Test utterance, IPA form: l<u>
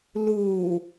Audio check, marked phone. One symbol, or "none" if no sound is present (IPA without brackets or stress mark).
u